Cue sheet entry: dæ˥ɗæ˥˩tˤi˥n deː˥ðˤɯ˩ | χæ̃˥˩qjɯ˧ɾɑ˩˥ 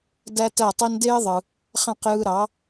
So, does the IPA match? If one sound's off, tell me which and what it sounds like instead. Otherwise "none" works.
ɗ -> t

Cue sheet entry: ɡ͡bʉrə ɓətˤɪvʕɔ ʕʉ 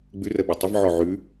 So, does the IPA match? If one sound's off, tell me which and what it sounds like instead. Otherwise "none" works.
none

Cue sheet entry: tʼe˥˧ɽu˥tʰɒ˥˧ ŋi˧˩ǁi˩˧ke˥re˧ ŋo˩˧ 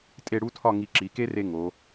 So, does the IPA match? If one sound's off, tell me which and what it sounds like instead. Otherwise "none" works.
none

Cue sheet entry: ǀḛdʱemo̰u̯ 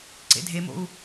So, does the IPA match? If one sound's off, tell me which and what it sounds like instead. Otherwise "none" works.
none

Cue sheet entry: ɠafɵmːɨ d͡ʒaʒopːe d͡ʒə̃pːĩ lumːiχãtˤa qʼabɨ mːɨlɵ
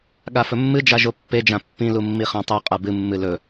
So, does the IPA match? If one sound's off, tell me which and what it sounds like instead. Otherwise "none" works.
ə̃ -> ã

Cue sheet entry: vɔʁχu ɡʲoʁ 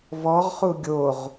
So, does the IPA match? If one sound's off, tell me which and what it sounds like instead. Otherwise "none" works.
none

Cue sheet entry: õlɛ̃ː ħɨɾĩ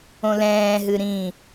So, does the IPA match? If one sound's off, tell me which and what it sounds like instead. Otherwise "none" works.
ħ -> ɦ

